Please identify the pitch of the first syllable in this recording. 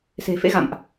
low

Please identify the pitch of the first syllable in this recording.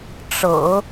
low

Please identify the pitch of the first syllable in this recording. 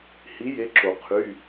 rising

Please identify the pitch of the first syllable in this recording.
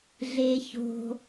high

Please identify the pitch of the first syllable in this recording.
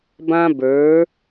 high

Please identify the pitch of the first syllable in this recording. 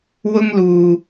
high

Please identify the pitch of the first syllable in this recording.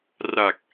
low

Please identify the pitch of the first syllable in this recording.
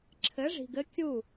rising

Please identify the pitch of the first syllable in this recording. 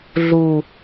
low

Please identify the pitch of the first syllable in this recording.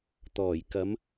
low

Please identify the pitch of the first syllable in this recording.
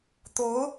rising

